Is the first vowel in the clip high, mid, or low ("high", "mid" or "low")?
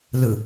high